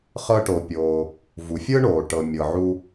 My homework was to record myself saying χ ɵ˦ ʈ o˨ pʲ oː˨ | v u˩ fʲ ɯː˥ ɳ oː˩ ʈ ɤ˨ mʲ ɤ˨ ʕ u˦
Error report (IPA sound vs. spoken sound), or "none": ɵ˦ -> ɤ˦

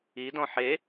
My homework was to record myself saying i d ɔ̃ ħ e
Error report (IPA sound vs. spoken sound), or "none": none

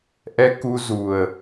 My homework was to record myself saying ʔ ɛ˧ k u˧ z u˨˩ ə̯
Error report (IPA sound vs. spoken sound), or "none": none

